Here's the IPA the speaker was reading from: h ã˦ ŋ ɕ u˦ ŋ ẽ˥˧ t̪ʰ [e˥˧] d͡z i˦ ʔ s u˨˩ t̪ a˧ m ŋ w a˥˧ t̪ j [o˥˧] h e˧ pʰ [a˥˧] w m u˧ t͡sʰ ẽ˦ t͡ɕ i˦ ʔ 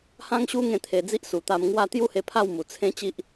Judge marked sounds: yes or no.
no, no, yes

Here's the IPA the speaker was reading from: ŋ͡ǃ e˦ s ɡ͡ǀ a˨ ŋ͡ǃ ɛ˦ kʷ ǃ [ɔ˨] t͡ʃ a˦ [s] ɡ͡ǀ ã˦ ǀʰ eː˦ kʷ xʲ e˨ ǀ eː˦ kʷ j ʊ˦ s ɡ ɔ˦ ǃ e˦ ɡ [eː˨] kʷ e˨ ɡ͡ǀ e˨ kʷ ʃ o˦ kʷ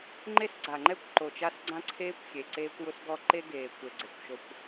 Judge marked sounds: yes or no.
no, yes, yes

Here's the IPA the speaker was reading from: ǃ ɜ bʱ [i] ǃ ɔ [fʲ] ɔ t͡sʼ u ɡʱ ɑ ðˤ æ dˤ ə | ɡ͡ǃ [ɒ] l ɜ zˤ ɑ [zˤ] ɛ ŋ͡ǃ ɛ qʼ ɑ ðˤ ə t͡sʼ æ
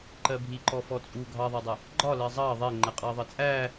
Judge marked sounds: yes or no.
yes, no, yes, no

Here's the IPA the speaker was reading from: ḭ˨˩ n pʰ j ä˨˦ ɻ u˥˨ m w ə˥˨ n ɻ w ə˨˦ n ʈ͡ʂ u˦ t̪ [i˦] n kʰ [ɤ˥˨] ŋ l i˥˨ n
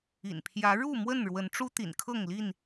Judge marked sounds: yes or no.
no, yes

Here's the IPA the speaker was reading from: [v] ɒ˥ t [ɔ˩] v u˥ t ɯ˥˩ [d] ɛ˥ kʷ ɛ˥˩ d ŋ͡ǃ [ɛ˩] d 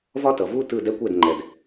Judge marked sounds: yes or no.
yes, no, yes, yes

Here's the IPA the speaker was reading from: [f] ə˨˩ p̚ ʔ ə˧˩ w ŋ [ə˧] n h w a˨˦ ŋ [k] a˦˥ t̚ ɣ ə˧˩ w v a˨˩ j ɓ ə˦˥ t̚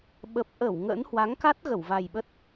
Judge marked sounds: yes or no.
no, no, yes

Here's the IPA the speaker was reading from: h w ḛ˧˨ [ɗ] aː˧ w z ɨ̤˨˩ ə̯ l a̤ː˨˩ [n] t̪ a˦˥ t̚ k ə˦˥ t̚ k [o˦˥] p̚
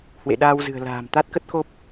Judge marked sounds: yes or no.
yes, no, yes

